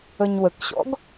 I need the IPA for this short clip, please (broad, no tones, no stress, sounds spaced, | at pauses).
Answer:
ə ɲ w ə k ɕ ɔ̰ ɡ